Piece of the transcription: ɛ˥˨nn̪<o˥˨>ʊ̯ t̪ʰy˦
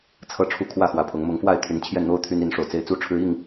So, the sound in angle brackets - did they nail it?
no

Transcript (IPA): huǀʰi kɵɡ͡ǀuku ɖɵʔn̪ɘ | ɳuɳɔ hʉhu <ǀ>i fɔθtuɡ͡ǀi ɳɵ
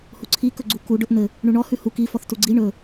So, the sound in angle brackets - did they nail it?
no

